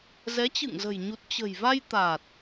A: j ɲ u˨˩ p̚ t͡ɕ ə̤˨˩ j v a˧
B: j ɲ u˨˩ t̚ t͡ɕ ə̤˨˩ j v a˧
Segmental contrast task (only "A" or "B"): B